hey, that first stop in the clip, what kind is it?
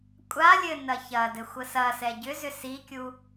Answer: ejective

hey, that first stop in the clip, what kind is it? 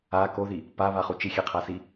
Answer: plain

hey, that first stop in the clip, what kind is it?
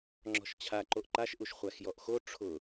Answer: click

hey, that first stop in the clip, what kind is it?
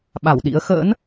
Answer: implosive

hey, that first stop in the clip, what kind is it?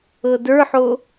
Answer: plain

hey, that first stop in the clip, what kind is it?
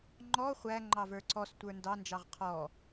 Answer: click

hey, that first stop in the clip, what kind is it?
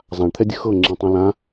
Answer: aspirated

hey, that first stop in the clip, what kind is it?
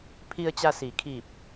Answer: aspirated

